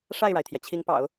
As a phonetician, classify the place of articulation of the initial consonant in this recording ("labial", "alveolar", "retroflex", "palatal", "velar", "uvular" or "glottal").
retroflex